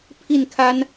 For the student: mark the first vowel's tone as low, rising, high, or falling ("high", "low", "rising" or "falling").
falling